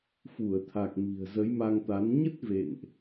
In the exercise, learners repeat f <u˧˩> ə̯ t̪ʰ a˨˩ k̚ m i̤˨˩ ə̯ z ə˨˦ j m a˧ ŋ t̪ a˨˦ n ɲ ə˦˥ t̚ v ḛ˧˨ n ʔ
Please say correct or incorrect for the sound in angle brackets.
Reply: correct